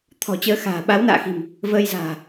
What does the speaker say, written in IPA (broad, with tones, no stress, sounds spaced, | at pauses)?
t̪ʰ ɔ̤˨˩ t͡ɕ əː˨˦ x a̤ː˨˩ ɓ a˨˦ w n a̰ː˧˨ x i̤˨˩ m | v əː˧ j z a̤ː˨˩